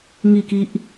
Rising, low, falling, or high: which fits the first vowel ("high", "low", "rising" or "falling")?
falling